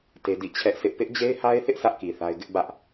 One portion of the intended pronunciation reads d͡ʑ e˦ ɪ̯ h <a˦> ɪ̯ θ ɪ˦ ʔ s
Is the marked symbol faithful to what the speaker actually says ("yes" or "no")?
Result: yes